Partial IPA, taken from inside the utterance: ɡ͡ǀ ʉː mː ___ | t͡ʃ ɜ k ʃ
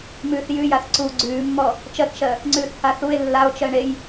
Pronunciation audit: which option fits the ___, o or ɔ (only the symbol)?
ɔ